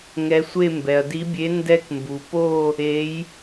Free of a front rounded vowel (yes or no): yes